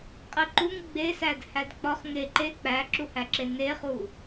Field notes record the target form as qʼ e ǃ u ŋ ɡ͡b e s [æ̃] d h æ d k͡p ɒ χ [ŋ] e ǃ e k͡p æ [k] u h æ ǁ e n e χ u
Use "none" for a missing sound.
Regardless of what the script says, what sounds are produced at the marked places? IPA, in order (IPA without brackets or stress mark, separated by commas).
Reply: æ, ŋ, ǁ